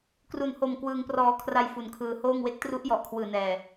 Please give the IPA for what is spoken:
k r u˨˩ n h o˨˩ m k w ɯː˧ ŋ p r ɔː˧ kʰ r a˧ j f u˨˩ n kʰ ɯː˧ h oː˥˩ ŋ w e˦˥ k̚ t r u˦˥ ʔ j ɔ˨˩ ʔ kʰ w ɯː˨˩ n ɛː˨˩

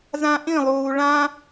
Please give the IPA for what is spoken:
z ã ʔ ĩ lˠ uː ɭ ã

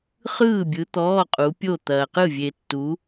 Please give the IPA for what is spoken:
χ ɯː˥˨ bʲ ɯ˨˦ t̪ ɔː˧˥˧ qʼ u˨˦ pʲ o˥˨ t̪ ɐː˨ q ɯ˥˨ vʲ e˨ tː u˨˦

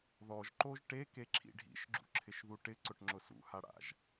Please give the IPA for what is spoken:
ð ɔ ʒ ǃ o ʒ ʈ e k e ǁʰ ḭ ɖʱ ḭ ʃ ɡ͡ǁ ṵ ǁʰ ɪ ʃ ð u ʈ ɪ ǀ ʊ ʈ ŋ͡ǁ ʊ s ṵ h a ɽ a̰ ʒ

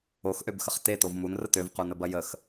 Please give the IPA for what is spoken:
o x ʔ ø b x ə χ t e t o v m u n r ə t ø v q u n ə b ɐ j ə x

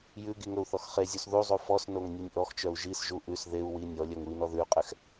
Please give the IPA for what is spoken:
j ʉ ɡ i ŋ ɵ u̯ θ ɔ x χ e zʲ u s ð u zˤ u f ɔ s n o ŋ nʲ o nʲ ʔ ɔ x t͡ʃ œ u̯ ʒ i s ʒ u ʔ ʉ s ð e u̯ w i nʲ ɔ lʲ œ ŋ u i̯ n ɔ ð ʉ y̯ qʼ ɛ x

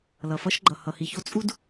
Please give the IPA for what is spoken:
l ʌ˨ f ʌ˦ ʃ ɡ͡ǃ ʌ˨ h ʌ˨ h i˨ ç o˦ t͡sʼ u˦ d

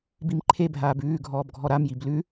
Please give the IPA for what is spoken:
b i m ǃʰ e bʱ aː b ʉː ɡʱ ɔː b ɡʱ ɔ ɾ a m j i b l ʉ

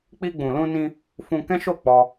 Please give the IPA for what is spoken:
k͡p i˧ ɡ͡b ũ˨ l ũ˧ n ĩ˧ | f ũ˧ k ɛ̃˦ ʃ o˦˨ k͡p ɔ˧

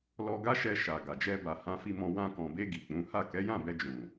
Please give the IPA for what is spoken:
l ɔ˧ ɡ a˦ ʃ ɛ˧ ʃ a˨ ɡ a˨ d͡ʒ ɛ˧ b a˨ h ã˧ f i˧ m ɔ̃˧ w ã˧ k ɔ̃˨ b e˧ ɡ i˨ k͡p ũ˨˦ h a˦˨ k ɛ˨˦ j ã˦˨ b ɛ˧ d͡ʒ ũ˨

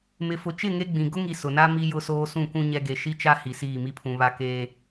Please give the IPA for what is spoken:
m ɪ˨ f ʊ˨ t͡ʃ ɪ˦˨ ŋ e˦ ɡ͡b ĩ˨ ɡ ʊ˦ ŋ i˨ s ʊ˨ n a˦ m i˨ j ʊ˨ s oː˨ s ũ˦˨ k ũ˦ ɲ ɛ˦ ɡ e˨ ʃ i˦ t͡ʃ a˦ h i˨ s iː˦˨ m i˦ pʰ ũ˨ β a˦ k eː˦

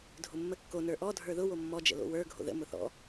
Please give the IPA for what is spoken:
dʱ ʊ mː ə kː o n ə˞ ʔ ɔ dʱ ə˞ ð ʊ w o mː ɔ d͡ʒ ə̰ l o̰ w ə˞ ɡʱ o̰ ð ə̰ m ʊ θ ɔ̰

